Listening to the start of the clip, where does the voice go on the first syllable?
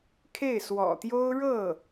falling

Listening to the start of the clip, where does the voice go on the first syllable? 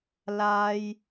high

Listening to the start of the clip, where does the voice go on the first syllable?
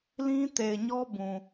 high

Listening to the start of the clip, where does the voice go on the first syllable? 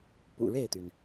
low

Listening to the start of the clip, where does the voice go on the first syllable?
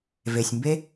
low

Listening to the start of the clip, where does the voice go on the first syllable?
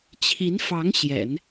rising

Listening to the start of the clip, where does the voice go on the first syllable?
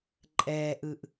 low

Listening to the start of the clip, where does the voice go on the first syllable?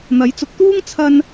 rising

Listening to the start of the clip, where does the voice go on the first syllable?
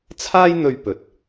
high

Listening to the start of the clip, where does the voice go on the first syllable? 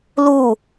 falling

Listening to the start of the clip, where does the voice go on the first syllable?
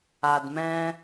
low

